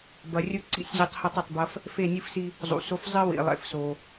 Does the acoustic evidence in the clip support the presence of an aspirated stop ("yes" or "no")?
no